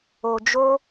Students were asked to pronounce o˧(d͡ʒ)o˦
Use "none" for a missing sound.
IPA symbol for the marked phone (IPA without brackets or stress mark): d͡ʒ